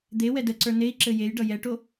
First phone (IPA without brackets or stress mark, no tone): d̪